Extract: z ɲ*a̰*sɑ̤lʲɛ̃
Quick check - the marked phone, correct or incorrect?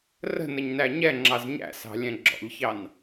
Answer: incorrect